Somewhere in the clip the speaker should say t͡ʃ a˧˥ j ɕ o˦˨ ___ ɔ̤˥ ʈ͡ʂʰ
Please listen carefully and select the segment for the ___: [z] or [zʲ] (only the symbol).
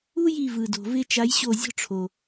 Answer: zʲ